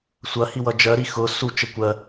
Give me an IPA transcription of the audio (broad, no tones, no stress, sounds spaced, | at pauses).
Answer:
sʷ ɐ h i w ʌ d͡ʒ ɜ ɾ i x ʊ s u t͡ʃ ə kʷ ɜ